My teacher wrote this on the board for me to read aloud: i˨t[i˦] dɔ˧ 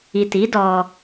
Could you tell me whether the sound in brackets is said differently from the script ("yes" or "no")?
yes